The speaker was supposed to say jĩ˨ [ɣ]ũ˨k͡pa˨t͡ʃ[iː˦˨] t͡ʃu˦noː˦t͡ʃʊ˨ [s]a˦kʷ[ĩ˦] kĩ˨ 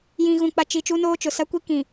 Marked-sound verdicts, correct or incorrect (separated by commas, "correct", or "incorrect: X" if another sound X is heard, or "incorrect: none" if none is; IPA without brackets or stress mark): correct, incorrect: iː˨, correct, incorrect: i˦